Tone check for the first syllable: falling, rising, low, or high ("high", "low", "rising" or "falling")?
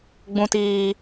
low